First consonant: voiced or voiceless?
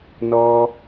voiced